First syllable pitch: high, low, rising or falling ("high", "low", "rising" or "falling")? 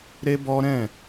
high